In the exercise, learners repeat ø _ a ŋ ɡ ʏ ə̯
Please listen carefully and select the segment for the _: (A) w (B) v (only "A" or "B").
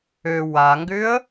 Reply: A